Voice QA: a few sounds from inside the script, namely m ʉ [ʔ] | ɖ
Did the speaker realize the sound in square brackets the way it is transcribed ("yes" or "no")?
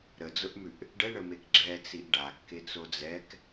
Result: yes